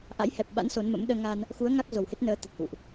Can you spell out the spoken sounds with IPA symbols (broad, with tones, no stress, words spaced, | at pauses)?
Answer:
ʔa̰˧˥jhɛ˨˩p̚ɓa̰˧˥n so˨˦nmə̰˧˥m ɗəː˧ŋa˧n | xu˨˦ə̯ ŋa˦˥k̚zo˨˩whe˦˥t̚ nəː˨˦ t̪ə˨˩t̚hṵ˧˨ʔ